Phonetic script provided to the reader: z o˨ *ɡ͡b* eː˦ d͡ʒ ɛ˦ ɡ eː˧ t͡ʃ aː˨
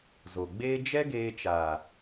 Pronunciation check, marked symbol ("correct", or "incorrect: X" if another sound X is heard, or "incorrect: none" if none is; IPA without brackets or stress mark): correct